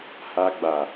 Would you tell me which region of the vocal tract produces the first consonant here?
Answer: throat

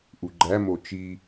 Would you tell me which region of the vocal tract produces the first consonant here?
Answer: throat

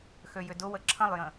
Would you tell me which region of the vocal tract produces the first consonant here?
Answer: velum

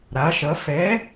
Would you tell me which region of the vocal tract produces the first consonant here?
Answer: tongue tip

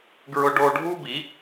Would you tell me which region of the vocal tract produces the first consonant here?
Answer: velum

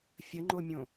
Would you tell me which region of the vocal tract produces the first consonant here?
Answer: lips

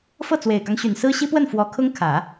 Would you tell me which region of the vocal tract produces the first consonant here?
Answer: lips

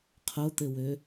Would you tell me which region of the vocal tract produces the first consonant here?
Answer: uvula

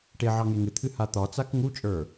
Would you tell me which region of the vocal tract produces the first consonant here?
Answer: retroflex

